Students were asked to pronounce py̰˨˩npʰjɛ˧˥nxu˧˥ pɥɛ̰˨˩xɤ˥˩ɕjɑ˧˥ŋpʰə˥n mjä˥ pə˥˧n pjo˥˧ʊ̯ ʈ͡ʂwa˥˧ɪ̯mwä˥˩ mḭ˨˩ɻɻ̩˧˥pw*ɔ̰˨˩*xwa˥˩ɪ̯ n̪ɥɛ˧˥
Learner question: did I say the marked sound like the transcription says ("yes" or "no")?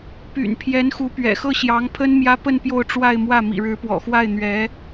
yes